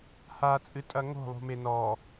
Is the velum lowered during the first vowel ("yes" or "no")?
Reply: no